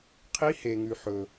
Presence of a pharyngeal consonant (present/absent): present